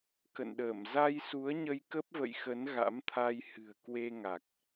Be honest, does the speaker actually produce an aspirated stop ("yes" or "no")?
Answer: yes